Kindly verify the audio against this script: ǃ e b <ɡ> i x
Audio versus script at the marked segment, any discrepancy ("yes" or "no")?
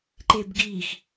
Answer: no